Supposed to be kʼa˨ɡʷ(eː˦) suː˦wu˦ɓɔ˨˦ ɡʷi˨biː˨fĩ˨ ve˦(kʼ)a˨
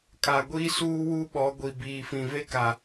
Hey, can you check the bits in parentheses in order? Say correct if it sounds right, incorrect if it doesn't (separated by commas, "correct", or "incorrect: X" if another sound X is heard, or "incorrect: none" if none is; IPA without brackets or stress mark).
incorrect: iː˦, incorrect: k